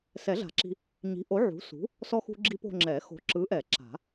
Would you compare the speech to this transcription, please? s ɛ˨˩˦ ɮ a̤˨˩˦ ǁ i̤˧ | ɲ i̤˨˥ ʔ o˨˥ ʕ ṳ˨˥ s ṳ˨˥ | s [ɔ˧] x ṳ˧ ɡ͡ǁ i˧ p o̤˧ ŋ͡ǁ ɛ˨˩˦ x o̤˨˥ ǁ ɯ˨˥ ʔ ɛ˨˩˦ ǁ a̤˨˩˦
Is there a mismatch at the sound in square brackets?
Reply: no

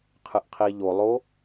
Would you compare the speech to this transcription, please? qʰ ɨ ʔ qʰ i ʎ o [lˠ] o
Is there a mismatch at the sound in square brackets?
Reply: no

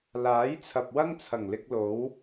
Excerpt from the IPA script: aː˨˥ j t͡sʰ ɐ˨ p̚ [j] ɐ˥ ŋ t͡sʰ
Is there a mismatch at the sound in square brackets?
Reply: yes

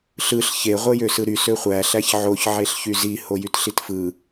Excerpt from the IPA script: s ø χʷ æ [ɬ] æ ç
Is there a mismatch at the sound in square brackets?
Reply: no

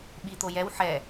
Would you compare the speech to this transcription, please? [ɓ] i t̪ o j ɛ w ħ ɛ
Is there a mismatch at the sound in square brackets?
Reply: no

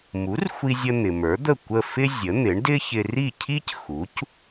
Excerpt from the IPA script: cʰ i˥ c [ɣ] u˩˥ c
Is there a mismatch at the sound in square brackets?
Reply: yes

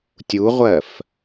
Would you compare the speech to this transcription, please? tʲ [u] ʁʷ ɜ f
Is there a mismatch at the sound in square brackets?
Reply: no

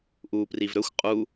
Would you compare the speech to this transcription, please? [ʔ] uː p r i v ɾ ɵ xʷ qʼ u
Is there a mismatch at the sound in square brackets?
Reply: no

